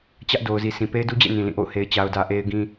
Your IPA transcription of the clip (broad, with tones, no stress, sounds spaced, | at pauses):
t͡ɕ ä˦ ʔ d o˨ ʊ̯ z i˨ sʰ ĩ˨ p e˦ ɪ̯ d u˦ d͡ʑ ḛ˦˨ n ĩ˨ l ĩ˦˨ ʔ o̰˦˨ ʊ̯ h e˨ ɪ̯ t͡ɕ a˨ ʊ̯ d ä˨ ʔ e˦ ɪ̯ ɡ ĩ˦